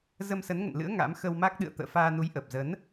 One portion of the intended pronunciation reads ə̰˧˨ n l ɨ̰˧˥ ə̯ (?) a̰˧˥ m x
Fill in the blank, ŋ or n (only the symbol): ŋ